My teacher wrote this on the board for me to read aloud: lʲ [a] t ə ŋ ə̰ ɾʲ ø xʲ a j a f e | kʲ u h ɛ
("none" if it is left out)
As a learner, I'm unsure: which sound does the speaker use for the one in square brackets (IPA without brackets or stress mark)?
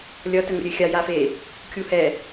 ʌ